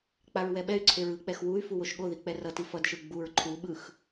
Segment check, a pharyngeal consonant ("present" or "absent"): absent